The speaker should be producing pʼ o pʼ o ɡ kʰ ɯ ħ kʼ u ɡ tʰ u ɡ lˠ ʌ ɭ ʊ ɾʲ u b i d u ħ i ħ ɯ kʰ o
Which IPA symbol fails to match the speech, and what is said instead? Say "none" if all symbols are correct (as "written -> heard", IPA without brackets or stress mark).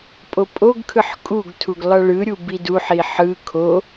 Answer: ʊ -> ɯ